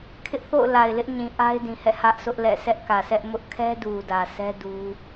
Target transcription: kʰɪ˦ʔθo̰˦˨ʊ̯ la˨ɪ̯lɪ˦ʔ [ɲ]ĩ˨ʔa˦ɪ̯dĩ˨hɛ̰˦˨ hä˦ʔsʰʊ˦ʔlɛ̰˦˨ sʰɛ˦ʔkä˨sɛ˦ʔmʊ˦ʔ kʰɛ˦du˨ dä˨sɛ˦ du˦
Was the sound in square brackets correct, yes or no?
yes